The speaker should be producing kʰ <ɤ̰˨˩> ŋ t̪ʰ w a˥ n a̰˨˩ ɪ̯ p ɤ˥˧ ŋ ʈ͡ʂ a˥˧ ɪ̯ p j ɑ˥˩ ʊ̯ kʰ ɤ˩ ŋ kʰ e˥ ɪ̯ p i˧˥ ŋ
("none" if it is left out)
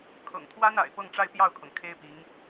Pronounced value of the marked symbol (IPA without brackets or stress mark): ɤ̰˨˩